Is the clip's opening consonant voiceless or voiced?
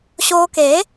voiceless